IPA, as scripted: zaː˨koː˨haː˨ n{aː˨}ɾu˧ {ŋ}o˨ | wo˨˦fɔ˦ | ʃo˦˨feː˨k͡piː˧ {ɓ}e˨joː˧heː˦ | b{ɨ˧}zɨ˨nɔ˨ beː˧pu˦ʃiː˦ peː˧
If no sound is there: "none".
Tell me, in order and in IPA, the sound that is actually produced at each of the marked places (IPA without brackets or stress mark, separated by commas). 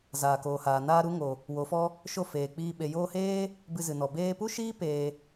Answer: aː˧, ŋ, ɓ, ɨ˧